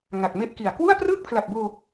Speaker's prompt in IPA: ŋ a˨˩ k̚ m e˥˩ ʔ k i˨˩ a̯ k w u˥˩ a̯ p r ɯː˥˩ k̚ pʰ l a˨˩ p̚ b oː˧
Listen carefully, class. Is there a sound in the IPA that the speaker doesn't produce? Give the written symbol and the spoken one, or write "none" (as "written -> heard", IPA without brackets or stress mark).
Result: none